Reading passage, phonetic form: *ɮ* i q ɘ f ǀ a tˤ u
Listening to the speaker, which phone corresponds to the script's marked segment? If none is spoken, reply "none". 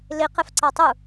l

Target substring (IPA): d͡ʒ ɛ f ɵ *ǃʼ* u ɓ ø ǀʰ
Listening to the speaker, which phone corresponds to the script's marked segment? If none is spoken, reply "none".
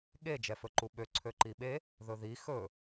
ǃ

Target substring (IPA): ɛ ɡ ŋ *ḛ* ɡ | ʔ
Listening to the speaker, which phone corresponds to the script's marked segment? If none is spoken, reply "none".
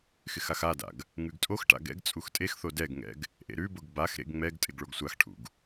ɛ̰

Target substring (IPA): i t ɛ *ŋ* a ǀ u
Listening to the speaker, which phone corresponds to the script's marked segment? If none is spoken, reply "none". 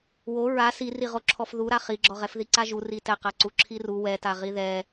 q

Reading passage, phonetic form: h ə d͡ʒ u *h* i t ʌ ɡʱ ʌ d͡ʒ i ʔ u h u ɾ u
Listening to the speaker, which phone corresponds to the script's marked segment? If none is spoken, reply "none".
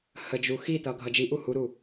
x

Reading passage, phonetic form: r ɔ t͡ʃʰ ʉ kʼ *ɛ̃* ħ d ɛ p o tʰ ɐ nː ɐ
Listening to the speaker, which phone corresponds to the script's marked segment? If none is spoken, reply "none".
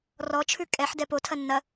ɛ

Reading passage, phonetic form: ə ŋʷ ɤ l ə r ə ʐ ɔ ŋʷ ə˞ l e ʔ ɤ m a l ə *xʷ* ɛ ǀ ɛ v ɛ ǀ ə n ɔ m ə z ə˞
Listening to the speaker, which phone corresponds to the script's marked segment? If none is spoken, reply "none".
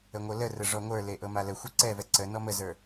xʷ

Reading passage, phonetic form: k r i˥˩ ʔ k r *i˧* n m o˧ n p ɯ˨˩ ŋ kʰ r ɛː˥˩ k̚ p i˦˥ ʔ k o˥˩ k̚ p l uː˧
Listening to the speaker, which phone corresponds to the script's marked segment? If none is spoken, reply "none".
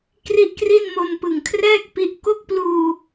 i˥˩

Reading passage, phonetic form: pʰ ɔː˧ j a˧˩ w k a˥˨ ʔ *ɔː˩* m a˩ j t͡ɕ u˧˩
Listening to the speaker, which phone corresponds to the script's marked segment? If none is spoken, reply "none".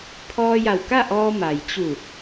ɔː˧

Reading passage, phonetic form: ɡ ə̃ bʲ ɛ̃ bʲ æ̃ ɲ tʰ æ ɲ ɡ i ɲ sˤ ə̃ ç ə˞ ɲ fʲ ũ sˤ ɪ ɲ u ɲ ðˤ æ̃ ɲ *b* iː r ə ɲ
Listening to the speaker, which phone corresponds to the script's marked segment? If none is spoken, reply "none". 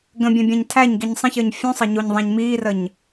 m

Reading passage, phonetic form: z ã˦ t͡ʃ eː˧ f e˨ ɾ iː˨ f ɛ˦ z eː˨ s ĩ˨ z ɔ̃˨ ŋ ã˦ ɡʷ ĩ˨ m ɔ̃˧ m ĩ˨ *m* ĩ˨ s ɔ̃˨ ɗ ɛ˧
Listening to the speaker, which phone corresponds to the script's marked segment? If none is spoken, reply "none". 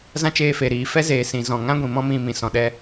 m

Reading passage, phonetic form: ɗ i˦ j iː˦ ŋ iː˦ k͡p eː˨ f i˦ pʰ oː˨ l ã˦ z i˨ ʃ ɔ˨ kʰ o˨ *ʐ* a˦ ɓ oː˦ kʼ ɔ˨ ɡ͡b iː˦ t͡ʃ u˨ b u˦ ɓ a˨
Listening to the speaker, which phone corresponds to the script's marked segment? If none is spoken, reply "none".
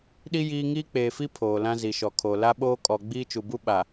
l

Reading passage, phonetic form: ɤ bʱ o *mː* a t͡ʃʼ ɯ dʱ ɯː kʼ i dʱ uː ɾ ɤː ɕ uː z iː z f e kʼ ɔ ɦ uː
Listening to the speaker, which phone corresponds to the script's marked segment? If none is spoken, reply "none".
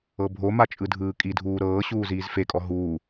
m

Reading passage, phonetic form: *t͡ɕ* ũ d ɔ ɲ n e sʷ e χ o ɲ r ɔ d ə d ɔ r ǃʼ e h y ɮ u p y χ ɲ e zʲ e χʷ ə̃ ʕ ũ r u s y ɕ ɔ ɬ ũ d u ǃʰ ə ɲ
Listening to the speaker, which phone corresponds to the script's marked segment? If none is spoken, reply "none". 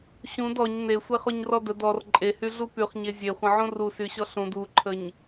ɕ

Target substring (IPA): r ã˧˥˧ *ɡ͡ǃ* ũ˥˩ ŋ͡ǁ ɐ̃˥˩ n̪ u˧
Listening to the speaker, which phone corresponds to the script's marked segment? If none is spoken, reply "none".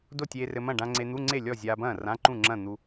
ǃ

